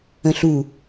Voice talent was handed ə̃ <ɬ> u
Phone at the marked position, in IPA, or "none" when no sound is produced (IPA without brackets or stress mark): ɬ